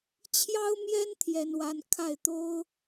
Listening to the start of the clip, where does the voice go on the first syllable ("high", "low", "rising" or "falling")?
high